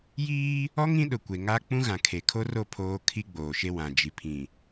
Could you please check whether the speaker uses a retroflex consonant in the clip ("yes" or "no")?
no